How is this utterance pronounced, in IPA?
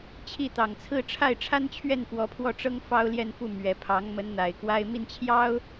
t͡ɕʰ i˥˩ t̪ ɑ˨˩ ŋ t͡sʰ ɹ̩˥ ʈ͡ʂʰ a˥˩ ɪ̯ ʈ͡ʂʰ a˥ n t͡ɕʰ ɥ ɛ˥˩ n f w ɔ˧˥ pʰ w ɔ˥˩ ʈ͡ʂ ɤ˥ ŋ f ɑ˥ ʊ̯ l j ɛ˥˧ n f u˥˩ m ɥ ɛ˨˩ pʰ ɑ˧˥ ŋ m ə˧˥ n n̪ a˨˩ ɪ̯ k w a˥ ɪ̯ m i˥˩ n t͡ɕʰ j ɑ˥ ʊ̯

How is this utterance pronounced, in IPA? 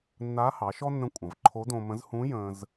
nː a˧˥ h ɑ˩˧ ʃ ɔ˥ nː ə̃˧ kʷʼ ɐ̃˩ v ǃʰ o˧˥ d õ˧ m ə̃˧˥ z h ũ˧˥ j ə̃˧ z

